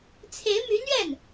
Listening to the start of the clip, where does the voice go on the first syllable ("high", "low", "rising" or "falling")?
rising